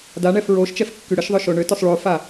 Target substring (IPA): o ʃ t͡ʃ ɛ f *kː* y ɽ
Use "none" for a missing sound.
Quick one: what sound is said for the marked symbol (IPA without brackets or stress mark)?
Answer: kː